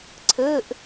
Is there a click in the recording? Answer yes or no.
yes